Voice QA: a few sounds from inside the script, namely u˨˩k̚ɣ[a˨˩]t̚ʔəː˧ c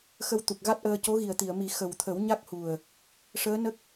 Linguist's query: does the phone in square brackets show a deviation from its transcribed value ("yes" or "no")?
yes